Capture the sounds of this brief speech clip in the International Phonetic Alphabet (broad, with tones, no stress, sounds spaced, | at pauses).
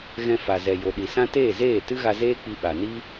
ɣ ɛ̃˧ f a˨ z ɛ˨ j o˨ ɗ i˨ s ã˦ t eː˦˨ z eː˦˨ t ɨ˦ ɣ a˧ z eː˦ k͡p i˧ ɓ a˨ n i˦